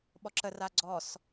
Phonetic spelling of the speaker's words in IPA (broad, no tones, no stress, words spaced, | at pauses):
ɓɔǁə raɡ͡ǀɔs